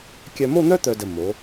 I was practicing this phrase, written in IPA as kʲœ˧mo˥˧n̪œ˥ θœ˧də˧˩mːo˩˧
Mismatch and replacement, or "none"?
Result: θ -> t̪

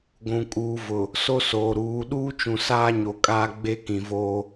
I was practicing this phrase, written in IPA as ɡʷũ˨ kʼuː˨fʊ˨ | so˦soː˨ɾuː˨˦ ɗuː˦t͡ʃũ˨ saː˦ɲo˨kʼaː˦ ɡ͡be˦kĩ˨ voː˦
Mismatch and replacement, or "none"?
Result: f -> v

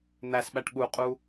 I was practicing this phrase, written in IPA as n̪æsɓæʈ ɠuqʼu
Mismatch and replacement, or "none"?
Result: none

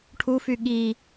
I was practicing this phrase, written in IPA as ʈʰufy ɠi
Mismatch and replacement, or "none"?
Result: none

